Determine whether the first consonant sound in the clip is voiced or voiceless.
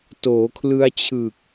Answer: voiceless